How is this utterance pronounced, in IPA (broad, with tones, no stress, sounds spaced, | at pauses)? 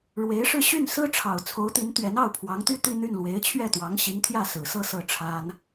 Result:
ɻ w e˧˥ ɪ̯ ʂ ɻ̩˥˧ ɕ y˥˩ n s ɹ̩˥ ʈ͡ʂʰ ɑ˨˩ ʊ̯ t͡sʰ o˧˥ ʊ̯ t̪ i˧˥ n t̪ ɥ ɛ˧˥ n ɑ˥˩ ʊ̯ pʰ w ɑ˧˥ ŋ t̪ y˥ t̪ i˥˧ n̪ y˥˩ n l w e˧˥ ɪ̯ t͡ɕʰ ɥ ɛ˥˩ t̪ w ɑ˧˥ ŋ ɕ i˧˥ ŋ t̪ʰ j ä˥˩ s ɹ̩˨˩ s ɤ˥˧ s ɤ˥˩ ʈ͡ʂʰ a˥ n